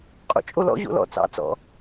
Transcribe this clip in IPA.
qʼ o̰ t͡ʃʼ o l ɔ̰ ʑ o̰ l ɔ̰ t͡s ɑ̰ t͡s ɔ̰

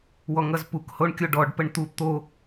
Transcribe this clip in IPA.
w ɔ ŋ ʌ z p u k h o ɳ kʲ o ɖ ɔ ɖ p ə ɳ t̪ u t̪ o

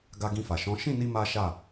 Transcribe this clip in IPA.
ɡ a˧ ɡ ĩ˧ f a˨ ʃ ɔ̃˨˦ ʃ ĩ˦˨ n i˧ m a˦ ʃ a˦˨

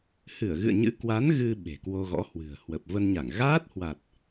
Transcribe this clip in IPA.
h ɨ˧˩ ə̯ ɣ ɨ̰˧˨ ə̯ ɲ ɨ̰˧˥ k w a˨˦ n ɣ ɨ˧ ɓ e̤˨˩ k w o˧ ɣ ɔ̰˧˥ h w ɨ̤˨˩ ə̯ h w ə˨˩ p̚ v ə˧ n ɲ a˧˩ ŋ ɣ aː˦˥ t̚ h w a˨˩ t̚

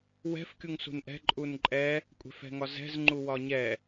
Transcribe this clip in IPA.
w ɛ̤ f kʲ u ŋ s ṳ n ʔ ɛ̤ ǃʼ u n ǃʼ ɛ | kʷʼ ɛ̤ f ɛ̤ ŋ ɒ z ɛ̤ z ŋ͡ǃ u w ɒ ɲ ɛ

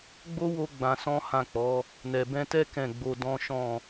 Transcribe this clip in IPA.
ɡ͡b o˦ w o˧ ɡ͡b ã˧ s ɔ̃˦ h ã˦˨ k͡p ɔ˨˦ | n ɛ˨ b ɛ̃˧ t ɛ˦ k ɛ̃˦˨ ɡ͡b o˧ d ɔ̃˦ ʃ ɔ̃˦˨

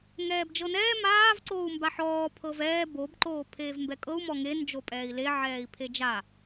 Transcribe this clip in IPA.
ŋ ɛː b d͡ʒ ɤ n ɛː m aː v ǀ oː u̯ m b a ħ ɔː pʰ ɤ v ɛː b o b ǃ oː pʰ eː v m b ɛ kʼ ɤ u̯ m ɔ ŋ e n d͡ʒ o pʼ ɛː i̯ l e ʕ ɛː i̯ pʰ e d͡ʒ a

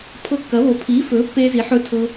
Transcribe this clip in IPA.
pʰ ɤ˧ kː ɐ˩˥ β o˩˥ pʰ iː˩˥ f ɵː˩˥ pː eː˧ z i˩˥ ħ ɵ˧ tʰ ɤ˧

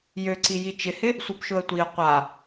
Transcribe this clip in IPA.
j ø ǀ i j i t͡ʃ ɪ h ɪ | sʷ œ b ʃ ʊ ə̯ tʷ i ə̯ qʷ a

